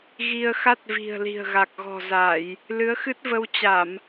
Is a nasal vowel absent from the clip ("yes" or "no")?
yes